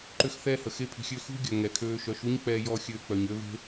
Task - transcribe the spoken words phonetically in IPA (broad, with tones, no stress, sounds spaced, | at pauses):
ǃ ø˦ x θ ɛː˦ h ə˨ x e˧ pʰ i̤˨ xʲ ø˧ x ṳ˦ ɡʲ œ˨ ŋ ɛ˨ kʰ øː˧ ʃ œ˨˦ ʃ u˦ ɲ k͡p ɛː˧ j ɔ˧ xʲ øː˧ k͡p œ˨ ɲ ø˦ v e̤˦